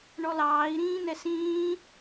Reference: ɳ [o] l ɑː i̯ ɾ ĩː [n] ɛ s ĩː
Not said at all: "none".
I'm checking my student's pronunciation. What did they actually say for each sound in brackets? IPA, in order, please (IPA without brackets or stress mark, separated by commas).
ɔ, n